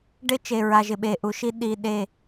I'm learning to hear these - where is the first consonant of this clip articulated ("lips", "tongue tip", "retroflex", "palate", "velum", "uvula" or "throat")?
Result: retroflex